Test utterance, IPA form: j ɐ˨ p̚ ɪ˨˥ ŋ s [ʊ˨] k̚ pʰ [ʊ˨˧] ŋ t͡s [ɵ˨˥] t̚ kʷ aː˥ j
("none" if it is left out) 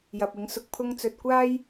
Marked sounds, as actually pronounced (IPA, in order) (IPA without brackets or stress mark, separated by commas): ʊ˨, ʊ˥, ɵ˧